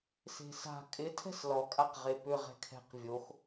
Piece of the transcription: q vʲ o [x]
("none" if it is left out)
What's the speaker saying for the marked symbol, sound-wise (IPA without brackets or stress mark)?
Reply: x